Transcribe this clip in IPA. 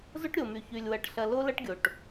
z o˦ ʈ ɾʲ o˨ m y˨ ç y˨ lʲ w ɐ˨ ʈ ɬ ɐ˨ l o˦ l ɐ˦ ʈ ɡʲ o˨ ʈ

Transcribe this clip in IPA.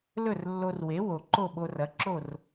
l ɵ˥˩ r lː o˧ r w e˩˥ w o˩ ǃ o˥˩ ɓ o˧ r ɐ˩˥ ǁ o˥˩ r

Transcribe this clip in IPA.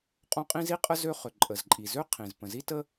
qʼ õ˥ qʼ ĩ˥ z i˥ qʼ ə˥ z ø˥ χ ʏ˩ ǃʼ ə˩ z ǃʼ i˩ z ø˥ qʰ ĩ˩ z p ə̃˩ z i˥ t ə˥

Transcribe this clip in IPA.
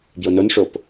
b j o n o n ʂ o p

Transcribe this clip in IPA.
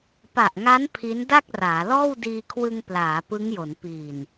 p a˨˩ ʔ ŋ a˦˥ n pʰ i˦˥ n d a˥˩ k̚ r aː˩˦ l ɔː˥˩ w d iː˧ kʰ w ɯ˧ ŋ p l aː˩˦ p ɯ˦˥ ŋ j o˩˦ n p iː˨˩ n

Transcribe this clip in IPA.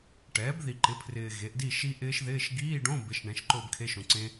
ʈ ɛː˩˥ b ð i˨ ǃ ɪ˩˥ pʰ r ɪː˨ ɣ e˩˥ ʔ d i˥˨ ʃ i˦˥ ʔ ɪː˦˥ ʃ ð ɪː˧˥˧ ʃ ɡ iː˧˥˧ ɖ õ˧˥˧ b ɪ˩˥ ʃ ɳ ɛ̃˩˥ ʃ ǃ ʊː˥˨ b kʰ e˧˥˧ ʃ õ˨ ǀ ẽ˦˥

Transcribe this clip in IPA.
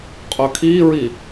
qʼ ɵ kʰ i ɹ i

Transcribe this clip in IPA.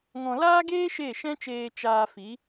ŋ ɔ̃˧ l aː˦ ɡ eː˦ ʃ e˦˨ ʃ ɛ̃˦ t͡ʃ eː˧ t͡ʃ aː˧ f i˨˦

